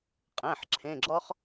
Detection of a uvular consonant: present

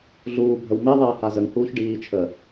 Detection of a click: absent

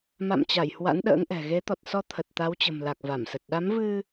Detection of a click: absent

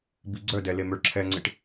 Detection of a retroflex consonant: present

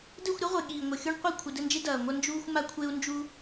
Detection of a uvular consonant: present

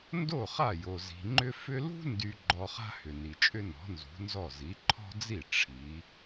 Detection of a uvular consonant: present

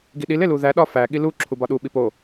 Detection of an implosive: present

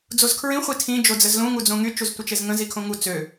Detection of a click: absent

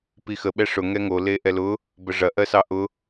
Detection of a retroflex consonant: present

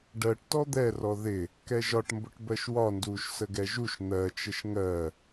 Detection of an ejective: absent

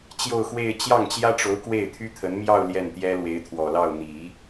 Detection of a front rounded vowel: present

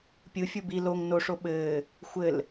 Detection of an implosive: present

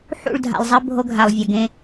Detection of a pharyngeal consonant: present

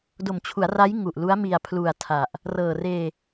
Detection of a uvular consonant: absent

